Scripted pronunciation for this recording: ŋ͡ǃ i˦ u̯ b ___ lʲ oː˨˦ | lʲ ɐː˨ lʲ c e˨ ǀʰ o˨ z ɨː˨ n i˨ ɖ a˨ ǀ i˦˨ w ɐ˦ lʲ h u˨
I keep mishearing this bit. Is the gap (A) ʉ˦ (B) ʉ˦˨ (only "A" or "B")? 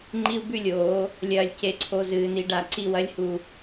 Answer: B